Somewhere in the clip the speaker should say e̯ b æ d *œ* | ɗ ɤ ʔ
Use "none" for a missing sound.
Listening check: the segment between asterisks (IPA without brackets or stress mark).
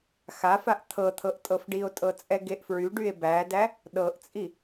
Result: æ